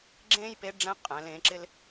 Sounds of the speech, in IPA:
ɡ͡ǁ ẽː˥ j p e˧˥ ɖ͡ʐ ɛ̃˧˥ qʼ ɛ̃˩˧ l ẽ˩˧ ǁ ɪ˧ l

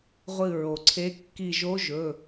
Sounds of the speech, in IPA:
ʁʷ ɨ˧˩ ɹ o˩ ǀʰ e˧˥ kː i˧˩ ʒ o˧˥ ʒ ɵ˩˧˩

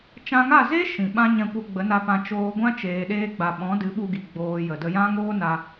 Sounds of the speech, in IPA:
t͡ʃ ã˧ ŋ a˦˨ z e˦ ʃ ĩ˨ ɓ ã˦ ɲ ɛ̃˧ kʷ ə˧ ɡ͡b ə˨˦ n a˧ p ã˧ t͡ʃ oː˧ ɡʷ ã˦ t͡ʃ eː˧ ɗ eː˦ ɡ͡b a˧ ɓ ɔ̃˨˦ d ɨ˨˦ ɓ u˧ ɡ i˨ ɡ͡b oː˧ j ə˨ d ə˧ j ã˦ ŋ oː˦ n a˧

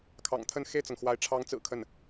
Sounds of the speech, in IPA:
kʰ ɑ̰˨˩ ŋ t̪ʰ ə˥˧ n x e˥˩ ɪ̯ t͡s ɤ˩ ŋ x w a˧˥ ɪ̯ ʈ͡ʂʰ ɑ˧˥ ŋ t͡s ɹ̩˨˩ kʰ ə˥˩ n

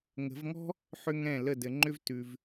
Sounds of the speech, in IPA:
ŋ ə̤˨˦ v ŋ ɔ̤˥ | ħ ʏ˥ ŋ ɛ̃˥˩ l ə˥˩ d ɘ˨˦ ŋ͡ǃ ʏ˥ v t ʉ˨ v

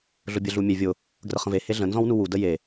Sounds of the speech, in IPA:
ɮ ʊ bʲ ə ɮ u mʲ e vʲ ʊ | ɡ r ə χ ə̃ v e h e ɮ ə̃ n z ɔ̃ w n u w u d ə j e

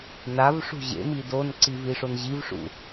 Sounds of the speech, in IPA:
n a v ʂ ṳ ʑ ḛ m i d o n ǀ i v i ʂ o n ʑ i v ʂ ṵ

